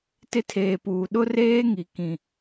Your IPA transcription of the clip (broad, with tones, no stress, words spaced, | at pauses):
tɪ˦tʰeː˨puː˨ ɗʊ˦reː˦ŋi˨ kĩ˨